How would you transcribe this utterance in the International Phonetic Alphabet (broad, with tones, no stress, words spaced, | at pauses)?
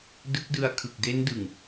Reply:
dɯ˦˥k̚dɯ˧a̯kʰɯ˨˩k̚ de˦˥n dɯ˨˩ŋ